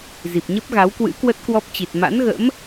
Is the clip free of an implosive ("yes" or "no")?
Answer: yes